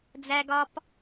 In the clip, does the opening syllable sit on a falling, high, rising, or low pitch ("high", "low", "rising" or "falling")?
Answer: high